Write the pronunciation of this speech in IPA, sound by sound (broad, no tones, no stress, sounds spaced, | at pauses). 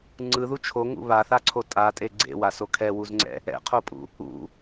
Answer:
ŋ͡ǀ ɯ ð u t͡ʃʰ o ŋ ṵ β a θ a ǀʰ o tʼ a tʼ e ɡ͡ǀ ḛ w a s o kʰ ɛ w u z ŋ͡ǀ ɛ̰ | ɛ̰ qʰ o pʼ ṵ | ṵ